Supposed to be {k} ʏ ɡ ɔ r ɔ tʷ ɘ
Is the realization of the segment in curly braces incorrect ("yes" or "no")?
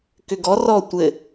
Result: no